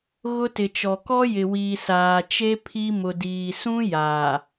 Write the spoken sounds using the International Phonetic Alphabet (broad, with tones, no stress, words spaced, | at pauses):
ɣʊ˦tɪ˨t͡ʃɔ˨ kɔ˦jɪ˨wiː˨ saː˨t͡ʃe˦ pʰi˦ mʊ˨ diː˨sũ˦ jaː˨